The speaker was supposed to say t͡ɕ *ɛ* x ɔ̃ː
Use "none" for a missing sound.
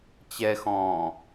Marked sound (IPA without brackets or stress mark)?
ɛ